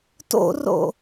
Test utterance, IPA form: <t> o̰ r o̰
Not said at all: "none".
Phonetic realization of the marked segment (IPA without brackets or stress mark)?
t